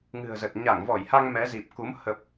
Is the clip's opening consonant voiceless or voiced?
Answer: voiced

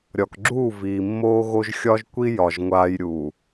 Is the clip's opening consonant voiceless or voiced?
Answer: voiced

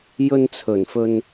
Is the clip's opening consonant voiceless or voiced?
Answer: voiced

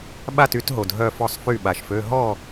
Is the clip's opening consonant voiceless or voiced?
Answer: voiced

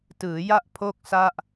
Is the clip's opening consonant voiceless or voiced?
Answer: voiceless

